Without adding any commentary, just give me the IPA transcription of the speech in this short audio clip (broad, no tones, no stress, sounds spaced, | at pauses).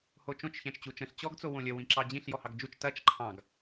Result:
h o t͡ʃ õ t͡ʃ ç æ̃ t͡ʃ t͡ɕ u t͡ʃ ə̃ ɬ t͡ɕ ɔ ɡ t͡s o w õ lʲ ə w ĩ ǁ ɑ d͡ʑ ĩ ɬ j ɔ h ɑ ɡ d͡ʒ u t͡ʃ t ɐ t͡ʃ ǃʰ ɑ̃ ɡ